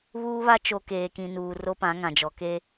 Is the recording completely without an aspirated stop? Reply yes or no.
yes